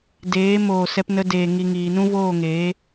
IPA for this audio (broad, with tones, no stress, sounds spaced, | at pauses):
d eː˨˦ m oː˨ s ɛ˧ p n ə˧ d eː˨ ŋ i˨ ŋ iː˨ n ũ˦ v oː˦˨ ŋ eː˨˦